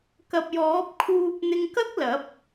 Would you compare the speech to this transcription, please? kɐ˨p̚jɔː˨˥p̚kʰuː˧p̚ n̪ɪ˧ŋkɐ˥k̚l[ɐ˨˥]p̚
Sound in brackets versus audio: correct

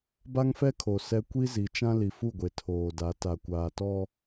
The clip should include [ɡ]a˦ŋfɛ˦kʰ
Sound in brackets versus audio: incorrect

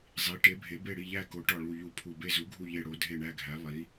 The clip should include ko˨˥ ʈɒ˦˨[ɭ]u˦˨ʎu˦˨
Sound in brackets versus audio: correct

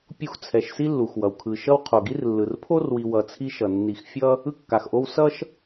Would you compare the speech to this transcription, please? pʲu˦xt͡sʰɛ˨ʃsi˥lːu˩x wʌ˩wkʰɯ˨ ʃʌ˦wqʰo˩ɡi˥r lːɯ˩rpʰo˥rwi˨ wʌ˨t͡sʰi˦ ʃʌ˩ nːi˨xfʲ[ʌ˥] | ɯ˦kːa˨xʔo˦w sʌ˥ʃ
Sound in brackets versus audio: correct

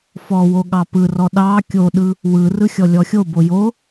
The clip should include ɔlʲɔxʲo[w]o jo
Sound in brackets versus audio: incorrect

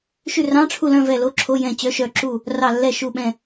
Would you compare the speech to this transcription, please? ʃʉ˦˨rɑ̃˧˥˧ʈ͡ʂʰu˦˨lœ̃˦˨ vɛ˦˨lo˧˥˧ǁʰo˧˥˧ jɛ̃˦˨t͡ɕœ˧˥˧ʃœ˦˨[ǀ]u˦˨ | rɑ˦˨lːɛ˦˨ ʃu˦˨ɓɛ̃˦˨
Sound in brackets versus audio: incorrect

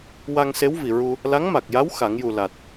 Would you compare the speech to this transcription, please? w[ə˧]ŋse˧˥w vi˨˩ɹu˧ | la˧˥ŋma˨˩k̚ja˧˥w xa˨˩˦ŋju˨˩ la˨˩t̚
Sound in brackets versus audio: incorrect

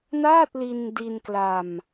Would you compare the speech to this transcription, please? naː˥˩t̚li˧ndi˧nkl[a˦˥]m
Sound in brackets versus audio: incorrect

